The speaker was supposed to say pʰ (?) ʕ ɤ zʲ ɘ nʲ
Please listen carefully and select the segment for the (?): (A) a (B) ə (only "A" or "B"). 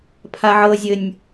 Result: A